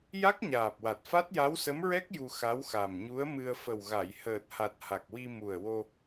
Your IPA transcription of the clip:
ja˦˥k̚ɲaː˨˩p̚wa˨˩t̚ fa˦˥t̚ja˧˥wsə˧˥mɹɛ˦˥k̚ ju˧xa˧˥wxa˨˩m ɲu˧˥ə̯mɨ˧ə̯ fə˨˩wɣa˨˩˨j həː˨˩t̚ha˨˩t̚ ha˨˩k̚wi˧mu˨˩ə̯ wo˧

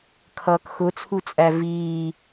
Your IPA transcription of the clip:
kʰʌːkxʊt͡sʰut͡sʼæ viː

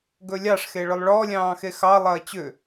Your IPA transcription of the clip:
ɡɵlʲɑʂxe ɭʏlˠɭɔlʲɑ̃ː xexɑlˠɐː t͡ɕʏ

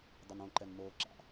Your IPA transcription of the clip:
dˤenõ ǃɛnmoː ǁa̰

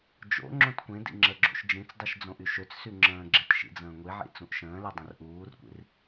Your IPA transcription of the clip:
d͡ʒo̰ ŋ͡ǁõtkʷẽdḭ ŋ͡ǁəɡ͡ǁo̰ʃ d͡ʒĩt͡sdˤiʃ d͡zõʔyʃøt͡ssy ŋ͡ǁə̃ːɡ͡ǁet ʃḭd͡zə̃ːŋʷiʕḭ t͡sũʔʃə̃ːle dˤə̃rʔuːrkʷḭr

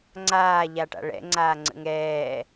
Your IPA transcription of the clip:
ŋ͡ǀaːʎaʈa̰ ɭɛ̰ ŋ͡ǀaːŋ͡ǀə̰ŋɛː

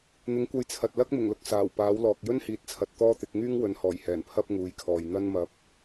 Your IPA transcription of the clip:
n̪ɪ˨˥ŋkʷɐ˧jt͡sʰɐ˨t̚ lɐ˥k̚mɪ˨˩ŋlʊ˧k̚ saː˨˩wpaː˨˥wlɔː˨k̚ jɵ˥nhiː˨t̚t͡sʰɐ˨t̚ t̪ɔː˥t̪ɪ˨˥k̚ ŋyː˥ŋwɵ˨˧nhɔː˨˩jhɛː˨˩n pʰɐ˥p̚ŋuː˨˧jkʰɔː˨j n̪ɐ˥nmɐ˧p̚

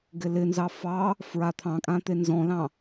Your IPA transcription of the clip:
ɡɪlɪnzɑ fɑ | fɹat̪ʰɑ̃kʼã t̪enzɔ̃lɑ̃

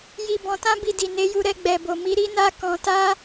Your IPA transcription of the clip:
ji˧bɔ̃˧ tã˦bi˧di˨ ne˨˦ju˧ɾɛ˧ ɡ͡bɛ˨bo˨mi˨˦ ɾi˦na˦ kɔ̃˧ta˦

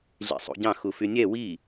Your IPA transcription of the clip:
ɮḭsˤṵɟɑ̃ xufynʲɛ wi

